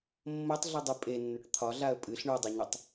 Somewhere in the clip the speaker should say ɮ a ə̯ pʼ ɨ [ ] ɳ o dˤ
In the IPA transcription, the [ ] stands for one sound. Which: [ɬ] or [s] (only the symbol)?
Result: ɬ